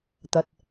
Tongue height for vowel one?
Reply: low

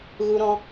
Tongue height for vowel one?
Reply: high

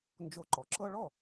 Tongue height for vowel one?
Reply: mid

